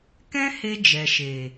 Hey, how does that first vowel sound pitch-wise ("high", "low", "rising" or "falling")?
high